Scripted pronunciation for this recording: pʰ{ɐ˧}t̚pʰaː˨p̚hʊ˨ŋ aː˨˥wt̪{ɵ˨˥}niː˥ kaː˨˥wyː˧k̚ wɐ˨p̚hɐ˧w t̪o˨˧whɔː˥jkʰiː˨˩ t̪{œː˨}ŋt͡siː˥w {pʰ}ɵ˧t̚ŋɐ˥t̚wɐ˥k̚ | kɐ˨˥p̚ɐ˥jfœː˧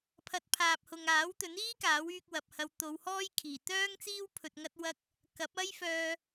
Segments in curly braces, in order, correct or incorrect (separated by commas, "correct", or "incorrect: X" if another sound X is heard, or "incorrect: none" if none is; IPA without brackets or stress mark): correct, correct, incorrect: œː˥, correct